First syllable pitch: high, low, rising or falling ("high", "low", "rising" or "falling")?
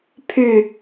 falling